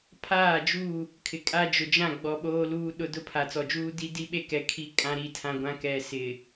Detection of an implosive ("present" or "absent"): present